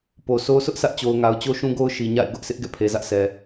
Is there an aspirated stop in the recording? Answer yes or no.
yes